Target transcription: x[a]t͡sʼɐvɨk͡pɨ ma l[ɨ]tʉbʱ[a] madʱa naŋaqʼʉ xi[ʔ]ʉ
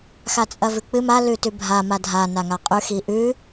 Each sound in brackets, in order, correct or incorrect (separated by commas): correct, incorrect, correct, correct